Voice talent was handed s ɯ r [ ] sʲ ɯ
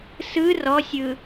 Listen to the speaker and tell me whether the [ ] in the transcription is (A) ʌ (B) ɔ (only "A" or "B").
B